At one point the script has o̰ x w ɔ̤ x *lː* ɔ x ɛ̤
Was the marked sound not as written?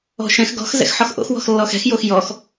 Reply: no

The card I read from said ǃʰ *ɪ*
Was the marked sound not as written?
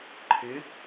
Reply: no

